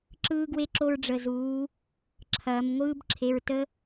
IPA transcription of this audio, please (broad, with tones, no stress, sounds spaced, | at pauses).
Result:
ǁ ɯː˦ ɡ w e˦ ǁ o˦ ɹ ɖ͡ʐ ə˩˧˩ z uː˩˧ | ǁʰ ɐː˩˧ m ŋʷ ɯː˦ b ǁʰ e˩˧˩ ɹ t ə˦